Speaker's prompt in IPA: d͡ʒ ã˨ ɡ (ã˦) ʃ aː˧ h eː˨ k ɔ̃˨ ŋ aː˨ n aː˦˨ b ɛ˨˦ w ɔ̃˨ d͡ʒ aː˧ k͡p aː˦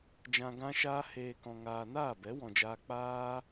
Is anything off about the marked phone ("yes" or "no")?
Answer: yes